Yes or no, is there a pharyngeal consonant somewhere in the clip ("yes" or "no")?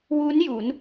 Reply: no